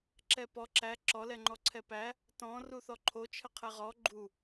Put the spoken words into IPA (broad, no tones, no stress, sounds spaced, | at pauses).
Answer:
ǁ ɛ p ɔ ǁ æ ǁ ɔ l ɛ ŋ͡ǃ ɔ ǀʰ ɛ p æ | t ɔ̃ r u θ ɔ ǃʰ o t͡ʃʰ ə qʰ ɛ ʁ ɔ ɡ͡ǃ u